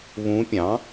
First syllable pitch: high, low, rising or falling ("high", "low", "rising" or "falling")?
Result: rising